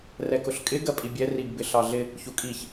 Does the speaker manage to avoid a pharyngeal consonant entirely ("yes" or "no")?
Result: yes